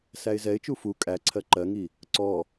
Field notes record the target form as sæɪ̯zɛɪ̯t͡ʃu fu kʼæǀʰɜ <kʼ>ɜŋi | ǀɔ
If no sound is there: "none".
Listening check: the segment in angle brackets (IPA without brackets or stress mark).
ǃ